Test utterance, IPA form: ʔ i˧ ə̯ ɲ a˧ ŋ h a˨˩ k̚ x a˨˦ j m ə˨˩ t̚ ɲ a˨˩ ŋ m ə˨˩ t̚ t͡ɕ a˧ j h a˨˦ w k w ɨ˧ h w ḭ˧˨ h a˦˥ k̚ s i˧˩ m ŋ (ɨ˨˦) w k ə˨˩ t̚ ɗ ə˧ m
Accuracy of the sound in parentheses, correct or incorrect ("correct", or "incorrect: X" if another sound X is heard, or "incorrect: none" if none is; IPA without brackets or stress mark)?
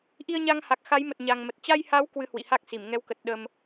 incorrect: ɛ˨˦